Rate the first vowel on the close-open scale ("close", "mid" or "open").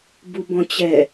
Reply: close